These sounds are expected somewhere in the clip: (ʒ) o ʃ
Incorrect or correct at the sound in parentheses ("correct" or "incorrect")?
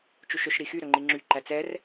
incorrect